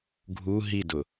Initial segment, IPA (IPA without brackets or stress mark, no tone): ɡʱ